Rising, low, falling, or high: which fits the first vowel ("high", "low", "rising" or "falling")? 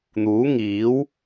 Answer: rising